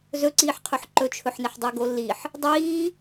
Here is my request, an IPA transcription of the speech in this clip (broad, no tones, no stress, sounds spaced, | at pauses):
z ɵ ǀ iː ħ qʰ ɵ ħ ǃ ɵ t͡ʃʰ ɵ ħ n e ħ dˤ i ɡ o lː i ħ | dˤ iː